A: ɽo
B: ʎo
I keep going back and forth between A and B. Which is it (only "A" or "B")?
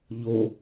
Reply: B